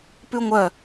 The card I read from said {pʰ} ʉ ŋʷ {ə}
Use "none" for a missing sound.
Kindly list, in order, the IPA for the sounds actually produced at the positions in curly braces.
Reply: p, œ

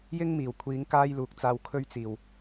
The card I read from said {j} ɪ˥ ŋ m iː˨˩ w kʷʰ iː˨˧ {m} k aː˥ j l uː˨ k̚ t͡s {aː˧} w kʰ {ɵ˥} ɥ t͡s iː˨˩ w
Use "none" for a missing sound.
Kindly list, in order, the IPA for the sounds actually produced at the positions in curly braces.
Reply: j, ŋ, aː˧, ɵ˥

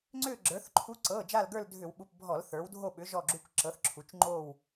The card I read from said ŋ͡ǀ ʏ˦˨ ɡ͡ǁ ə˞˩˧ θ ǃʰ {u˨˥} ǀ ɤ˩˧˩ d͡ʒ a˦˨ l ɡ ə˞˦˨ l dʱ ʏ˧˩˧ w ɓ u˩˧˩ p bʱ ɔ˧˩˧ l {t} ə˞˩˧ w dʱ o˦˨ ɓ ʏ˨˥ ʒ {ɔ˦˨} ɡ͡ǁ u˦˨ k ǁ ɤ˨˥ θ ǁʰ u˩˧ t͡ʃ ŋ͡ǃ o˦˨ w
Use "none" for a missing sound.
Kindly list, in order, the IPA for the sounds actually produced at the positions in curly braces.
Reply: u˨˥, θ, ɔ˦˨

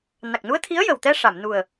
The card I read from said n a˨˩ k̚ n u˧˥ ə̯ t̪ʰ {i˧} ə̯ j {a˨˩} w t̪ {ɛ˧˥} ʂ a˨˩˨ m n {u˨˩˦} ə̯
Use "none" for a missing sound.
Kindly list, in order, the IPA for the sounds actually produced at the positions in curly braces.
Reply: i˧˥, ə˨˩, ɛ˧, u˨˩

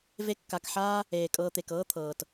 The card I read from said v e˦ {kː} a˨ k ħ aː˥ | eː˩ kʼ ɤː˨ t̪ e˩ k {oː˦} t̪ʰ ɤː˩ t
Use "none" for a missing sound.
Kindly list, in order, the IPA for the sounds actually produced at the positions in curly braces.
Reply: kː, ɤː˦

